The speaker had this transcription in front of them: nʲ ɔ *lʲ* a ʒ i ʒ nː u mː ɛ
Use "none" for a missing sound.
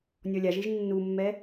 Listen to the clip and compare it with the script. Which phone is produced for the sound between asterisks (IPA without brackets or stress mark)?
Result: lʲ